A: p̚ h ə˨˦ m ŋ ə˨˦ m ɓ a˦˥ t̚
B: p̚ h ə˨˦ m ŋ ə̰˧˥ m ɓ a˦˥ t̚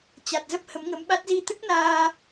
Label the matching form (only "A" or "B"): A